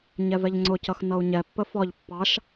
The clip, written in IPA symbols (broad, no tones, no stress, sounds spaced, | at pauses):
ɲ ɛ v ɛ ʎ ŋ͡ǀ ʊ c ʌ x n ʌ u̯ ɲ ɛ pː ə f ɒ ʎ pː ɑ ʃ